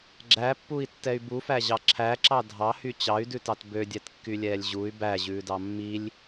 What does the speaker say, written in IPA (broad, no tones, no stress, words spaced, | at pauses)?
ɡ͡ǁæpːui̯tːɛy̯ bufæʑɑ ǁʰæǁɑ dʱɑhy t͡ɕɑy̯dʉtɑt bødʲɛtkːylʲɛːlʲ ʑuy̯ bæʑʉːdɑ mːilʲ